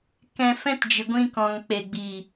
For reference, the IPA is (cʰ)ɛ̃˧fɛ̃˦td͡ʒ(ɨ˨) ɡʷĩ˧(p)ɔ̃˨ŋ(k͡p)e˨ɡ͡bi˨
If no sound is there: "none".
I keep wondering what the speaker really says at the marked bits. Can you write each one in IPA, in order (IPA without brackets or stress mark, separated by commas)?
k, ɨ˨, k, k͡p